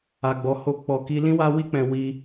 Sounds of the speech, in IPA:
a˨ ɡ͡b ɔ˨ h o˧ k͡p ɔ˧ k i˧ l ĩ˦ w a˦ w i˦ k͡p ɛ̃˧ w i˧

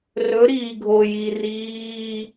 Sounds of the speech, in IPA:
r ɵ˩˧ ɾ iː˩ ɡʱ o˩ j i˩ r iː˧˥˧

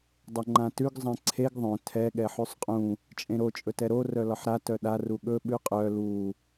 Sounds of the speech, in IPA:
dˤ ɛ ŋ͡ǃ ã t ʉ ɡ zˤ ɛ̃ ǀʰ e ɡ ðˤ œ̃ tʰ ɛ ɠ ɛ ħ ʉ sˤ qʼ ũ | t͡ʃʼ ẽ ɾ o t͡ʃʼ ɵ t ɛ ɾ o r œ l ɒ ħ ɾ a t œ ɗ a r u ɠ ɵ ɓ ʉ qʼ œ l u

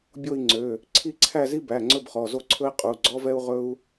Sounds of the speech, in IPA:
bʲ o˥˧ i̯ ŋ͡ǀ ø˩˧˩ | ǀʰ i˥˧ ǀʰ æ˥˧ z i˥ b æ˩˧˩ ŋ͡ǀ ɵ˥˧ b χ ɔ˩˧˩ z o˥˧ ǀʰ ɵ˥ i̯ qʼ u˩˧˩ ɡ͡ǀ ɔ˥ v ɛ˥ u̯ ʁ ɵ˥ u̯

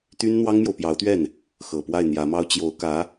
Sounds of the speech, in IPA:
t̪ y˥ n n̪ w ɑ˥ ŋ m j o˨ ʊ̯ p j ɑ˧˥ ʊ̯ t̪ ɥ ɛ˥˩ n | x ɤ˨˩ p w a˥˩ ɪ̯ n̪ j ä˧˥ m ɑ˥ ʊ̯ t͡ɕ j o˧˥ ʊ̯ k ä˧˥

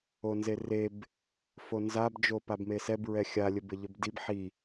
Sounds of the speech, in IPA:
o n z e r e b | f o n z a b d͡ʒ o p a b m e s ɛ b ɹ ɛ xʲ a lʲ ɘ b ɘ ʎ ɘ b d i b ħ i

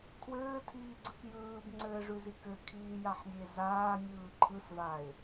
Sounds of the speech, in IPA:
tʰ w ɘː tʰ iː ɡ͡ǀ ɯ k j ɯː b ŋ͡ǀ ɘː ʐ ʉ z i k ɘ kʰ iː j a ħ zʲ e z aː nʲ ɯː ǃʰ ɯ s v a ɪ̯

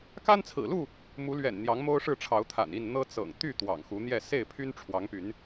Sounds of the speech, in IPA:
k a˦ n t͡sʰ ɹ̩˨˩ l u˥˨ | m u˨˦ l ɥ ɛ̰˨˩ n n̪ j ɑ˨˦ ŋ m o˦ ʊ̯ ʂ ɻ̩˥˨ ʈ͡ʂʰ ɑ˨˦ ʊ̯ t̪ʰ a̰˨˩ n i˥˨ n n̪ ɤ˦ t͡s ɤ̰˨˩ ŋ t̪ y˥˨ t̪ w ɑ̰˨˩ ŋ x u˨˦ n̪ j ɛ˥˨ s e˥˨ ɪ̯ pʰ y˦ n ʈ͡ʂʰ w ɑ˨˦ ŋ p y˨˦ n

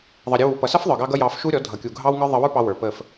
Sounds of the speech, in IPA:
ðˤ ʌ˨ ɾʲ ə˧ w u˨ p ʌ˨ s ʌ˦ f ðˤ ə˞˨ ɡ ɑ˧ ɡ ʌ˧ j ɑ˧ f ʃ u˦ ɾʲ ɔ˨˦ dʱ ʌ˨ kʲ u˨ ɡʱ ɑ˦ w ŋ ə˞˦ ðˤ ə˧ w ə˞˦ p ɑ˧ w ə˞˨ p ə˦˨ f

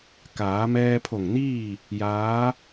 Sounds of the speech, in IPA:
k aː˩˧ m ɛː˧ pʰ o˧˩ ŋ n iː˥˨ | j aː˧˥

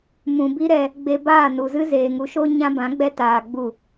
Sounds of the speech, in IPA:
m ũ˨ b i˦ ɾ ɛ˧ | ɡ͡b e˧ b aː˦˨ n u˨ z ɨ˦ z eː˨ ŋ u˨˦ ʃ o˦ ɲ ã˦ b ã˨˦ ɡ͡b ɛ˦ t aː˧ ɡ͡b u˦˨

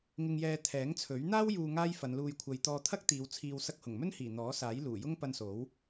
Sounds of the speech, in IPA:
ŋ ɪ˧ ŋ j ɛː˧ t̪ʰ ɛː˨˥ ŋ t͡sʰ ɵ˨˥ ɥ n̪ aː˥ w j uː˧ ŋ aː˥ j f ɐ˨˧ n l uː˧ j kʷʰ ɐ˧ j t̪ ɔː˧ t̪ʰ ɐ˥ k̚ t̪ iː˨˧ w t͡sʰ iː˧ w s ɐ˧ k̚ h ʊ˨˩ ŋ m ɵ˥ n h iː˨˩ n̪ ɔː˨˥ s aː˨˥ j l uː˨˩ j ʊ˥ ŋ p ɐ˧ n s o˨˥ w

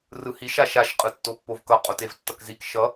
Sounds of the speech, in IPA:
r ɯ h i ʃ a ʃ a ʃ qʼ ɯ tː o pː o v k ʌ qʼ o t e v tː ʌ k z i k ʃ ʌ

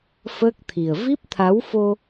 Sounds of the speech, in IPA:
f əː˦˥ k̚ t̪ʰ i˨˩ ə̯ v i˦˥ p̚ t̪ʰ a˨˦ w f o˧

